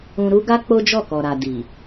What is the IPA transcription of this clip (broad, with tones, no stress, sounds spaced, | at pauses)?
ũ˧ ɾ u˦ ɡ a˦ k͡p o˦ d͡ʒ ɔ˦˨ k ɔ˨ ɾ a˨ d i˨